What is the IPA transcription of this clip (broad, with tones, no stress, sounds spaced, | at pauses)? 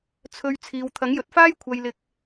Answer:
t͡sʰ ɵ˧ ɥ t͡sʰ iː˨ w t̪ʰ ɐ˨˥ ŋ j ɵ˨˥ t̚ f aː˥ j kʷʰ ɐ˥ j l ɪ˥ k̚